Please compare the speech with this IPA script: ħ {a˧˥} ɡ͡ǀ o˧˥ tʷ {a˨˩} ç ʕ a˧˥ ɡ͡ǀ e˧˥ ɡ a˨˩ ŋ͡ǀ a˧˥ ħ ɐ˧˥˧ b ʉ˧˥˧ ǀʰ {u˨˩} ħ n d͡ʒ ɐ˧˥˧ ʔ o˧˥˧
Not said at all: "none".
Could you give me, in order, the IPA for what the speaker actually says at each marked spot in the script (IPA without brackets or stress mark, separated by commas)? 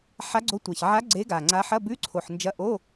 a˧˥, a˨˩, o˨˩